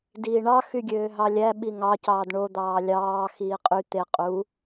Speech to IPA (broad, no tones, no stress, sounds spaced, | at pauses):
d iː ɳ ɑ x y ɡʲ øː ɦ ɑ lʲ æ ɓ i ŋ ɑ c ɑː d ɳ o d̪ ɑː lʲ ɑː x iː qʼ y t̪ e qʼ u